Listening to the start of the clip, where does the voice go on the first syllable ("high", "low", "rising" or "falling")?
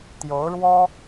rising